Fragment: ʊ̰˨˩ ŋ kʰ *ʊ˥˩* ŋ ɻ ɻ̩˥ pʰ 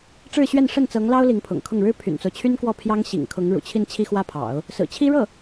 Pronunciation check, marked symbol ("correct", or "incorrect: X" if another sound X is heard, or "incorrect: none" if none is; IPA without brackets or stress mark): correct